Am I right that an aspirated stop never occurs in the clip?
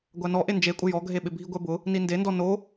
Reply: yes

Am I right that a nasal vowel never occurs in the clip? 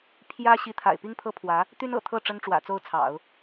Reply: yes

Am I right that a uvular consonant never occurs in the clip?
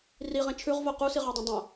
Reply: no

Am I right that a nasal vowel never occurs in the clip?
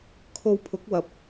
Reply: yes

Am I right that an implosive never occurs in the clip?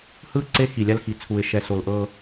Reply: yes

